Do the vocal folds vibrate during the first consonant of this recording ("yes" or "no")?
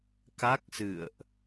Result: no